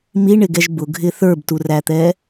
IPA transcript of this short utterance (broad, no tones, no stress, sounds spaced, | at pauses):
m i ɳ ɪ ɡ ɛ ʒ b ʊ ɡʱ ɪ θ ə˞ b t u r æ t̪ ɛ